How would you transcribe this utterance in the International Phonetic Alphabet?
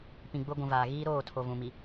pĩ˨ɡ͡bʊ˦ɡʷũ˨vaː˨ ɣiː˦ɾoː˦˨tʰo˨vũ˨ mi˨

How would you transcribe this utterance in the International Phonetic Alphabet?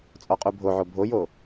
t͡sʼɔqʼubʱoʕo bʱojo

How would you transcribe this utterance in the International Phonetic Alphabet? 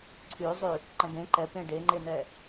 ǀʰʉzˤʉ | ǃə̃bẽ ǃɛpẽ ɖeŋ͡ǃenɛ

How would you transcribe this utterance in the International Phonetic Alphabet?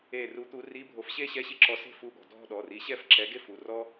e˧˩ru˨˥t̪u˨˥ ri˧˥˧bʱo˨˥fɕe˥ɕɛ˧˥˧ ɕi˥ǁɔ˨˥se̤˥˧ fu˧˥˧ɠɔ̤˩˧˩ dʱɔ̤˥˧ɗɔ˩˧˩ri˨˥ ɕɛ˥˧fǁɛ˨˥ɡe˥fu˩˧˩ rɔ˥

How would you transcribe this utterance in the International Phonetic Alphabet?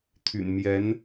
t̪ʰy̰˨˩nmjɛ˧˥n

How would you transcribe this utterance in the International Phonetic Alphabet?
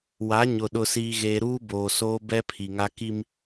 wa˨˦ɲʊ˨ ɗʊ˨siː˨ɣeː˨ ɾuː˦boː˨soː˦ bɛ˦pʰi˨ŋa˦ ki˦m

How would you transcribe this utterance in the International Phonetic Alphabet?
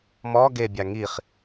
mɔ ɡebʲa ŋiχ

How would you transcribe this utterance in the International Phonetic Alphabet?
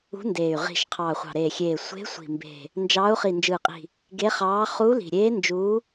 ṳ˧˥ndeː˨˩y̯ ʁi̤˨˩ʃ qʰɑː˨˩χʷɑ̤˨˩ɾeː˨˩xʲeː˨˩ sʷe̤˧˥ sʷi̤˨˩mbe̤˨˩ | nd͡ʒɑː˧˥u̯ χi˨˩nd͡ʒɯː˨˩qʼi̤˨˩ | ɡe˧˥χɑː˧˥ χuː˧˥li̤˨˩ɾʲeː˧˥ nd͡ʒuː˧˥

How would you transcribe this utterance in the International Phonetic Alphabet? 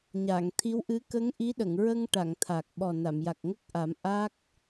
ɲa˨˩˨ŋ t̪ʰi˧˥wʔɨ˧˥ kə˧˥ŋ ʔi˧˥ɗə˨˩˨ŋɹə˧ŋʈa˨˩˨ŋ t̪ʰa˨˩k̚ɓɔ˨˩ na˨˩˨mja˨˩k̚ŋə˦˥k̚ʔa˨˩˦m ʔa˦˥k̚

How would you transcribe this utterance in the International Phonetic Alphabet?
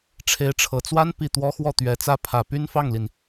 ʈ͡ʂʰe˧˥ɪ̯ʈ͡ʂʰɤ˨˩t͡swa˥n pi˥˩ t̪wɔ˥xwɔ˥˩t̪ɥɛ˧˥t͡sä˥ pʰä˨˩py˥nfɑ˥˩ŋli˩n

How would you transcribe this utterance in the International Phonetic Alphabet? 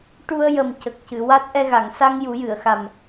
ʈu˧ə̯jə˨˩m cə˨˩k̚ cɨ˨˩˨wa˦˥t̚ʔɛ˧ɣa˨˩˨ŋ sa˧ŋ ju˨˩˦jɨ˨˩˨ə̯xa˨˩m

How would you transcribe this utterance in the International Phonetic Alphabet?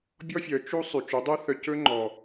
bʲɔ˥fʲœ˩˥ t͡ʃu˥ sˤy˩t͡ʃʉ˩˥dˤɵ˥ θœ˧cɵ˥ŋ͡ǃɔ˩

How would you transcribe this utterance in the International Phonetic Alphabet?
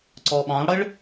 ǀɔɓɑ̃lˠɽəɭ

